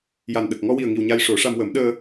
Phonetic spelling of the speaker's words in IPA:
j a˨˩ n ɗ ə˨˩ k̚ ŋ ɔ˧ w i˨˩ ə̯ ŋ i˨˩ w ɲ a˧ j ʂ o˨˩˦ ʂ a˧ m w ə˨˩˦ m ɗ əː˧

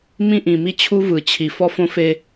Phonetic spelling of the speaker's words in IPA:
m ĩ˦ ʔ ĩ˨ m i˦ t͡ɕʰ u˦ v ɯ˨ t͡ɕʰ i˨ f ɔ˦ f õ˦ f e˦

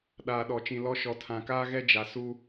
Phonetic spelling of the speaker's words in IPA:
ɗ aː˨ ɗ ɔ˨ t͡ʃ ĩ˨ l ɔ˦ ʃ ɔ˨ tʰ ã˨ k aː˦ ɣ ɛ˦ d͡ʒ a˨ s u˦

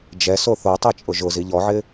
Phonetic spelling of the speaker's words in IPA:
d͡ʒ ɛ s o θ o tˤ ɛ t͡ʃʼ ʊ ʒ ʊ z i ʎ ɔ ʕ ɪ

